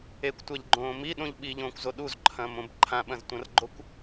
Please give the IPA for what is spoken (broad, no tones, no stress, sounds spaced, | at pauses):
e kʷ tʷ a ʎ ɡ͡ǃ õː m i ɗ õ ʎ ɓ i ʎ õː kʷ z o ɗ u z ǃʰ ɐ̃ː m õ b ǃʰ ã ɓ ɐ̃ z tʷ ɐ̃ r ɡ͡ǃ o kʷ